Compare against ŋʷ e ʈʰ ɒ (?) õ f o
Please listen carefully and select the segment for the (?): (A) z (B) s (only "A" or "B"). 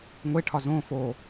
A